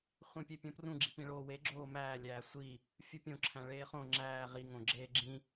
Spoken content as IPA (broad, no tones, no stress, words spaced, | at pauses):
χʷĩpʲepʲõprũ ɡ͡ǁipĩɭoːwe ɡ͡ǁoːmæː lʲæːsʷi | fʲupʲõǁʰæ̃ ɭeːχõ ŋ͡ǁæː ʁi ŋõɡ͡ǁeːɡ͡ǁĩ